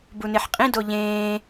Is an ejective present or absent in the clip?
present